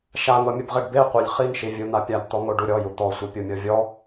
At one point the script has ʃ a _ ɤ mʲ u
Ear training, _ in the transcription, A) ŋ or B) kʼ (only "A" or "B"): A